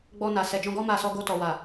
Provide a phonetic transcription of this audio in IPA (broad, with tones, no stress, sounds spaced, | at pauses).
ɡ͡b ɔ˧ n a˨ s ɛ˨ d͡ʒ ɔ̃˧ ɡ ɔ˦ m a˦˨ s ɔ˧ ɡ o˧ t ɔ˨ w a˨